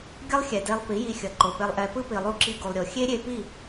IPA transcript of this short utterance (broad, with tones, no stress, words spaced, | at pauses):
ɡʲʌ˦lˠxʲɛ˨de˧lˠ pi˨˦ji˧xʲʌ˨ ǃo˨pe˧lˠʔɛ˧ pɯ˦pi˨lˠu˧ ǁi˧ɡu˨lˠɾʲo˨ xʲe˦ɾʲe˧pi˦˨